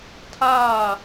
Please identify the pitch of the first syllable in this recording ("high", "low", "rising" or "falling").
falling